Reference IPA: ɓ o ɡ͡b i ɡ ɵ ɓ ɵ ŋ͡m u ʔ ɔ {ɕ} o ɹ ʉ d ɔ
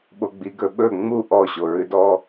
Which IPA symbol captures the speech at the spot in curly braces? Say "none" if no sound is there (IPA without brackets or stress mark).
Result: ɕ